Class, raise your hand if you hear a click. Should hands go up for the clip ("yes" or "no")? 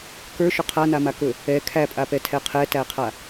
no